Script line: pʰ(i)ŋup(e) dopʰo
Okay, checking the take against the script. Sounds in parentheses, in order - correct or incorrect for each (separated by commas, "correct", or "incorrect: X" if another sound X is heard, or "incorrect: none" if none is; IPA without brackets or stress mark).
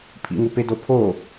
incorrect: ḭ, correct